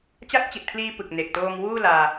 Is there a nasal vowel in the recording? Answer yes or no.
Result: no